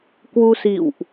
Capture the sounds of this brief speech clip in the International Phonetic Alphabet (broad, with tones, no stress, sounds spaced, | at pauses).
k w u˧ s ḭ˧˨ w ʔ